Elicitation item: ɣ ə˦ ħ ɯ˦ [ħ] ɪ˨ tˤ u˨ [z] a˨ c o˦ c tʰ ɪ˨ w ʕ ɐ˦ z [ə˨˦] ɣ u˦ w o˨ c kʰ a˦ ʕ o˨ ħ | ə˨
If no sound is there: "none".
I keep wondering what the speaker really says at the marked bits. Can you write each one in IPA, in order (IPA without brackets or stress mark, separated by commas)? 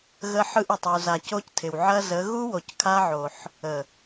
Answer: ʔ, z, ə˨˦